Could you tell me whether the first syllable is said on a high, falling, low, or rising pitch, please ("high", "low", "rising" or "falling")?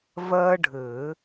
high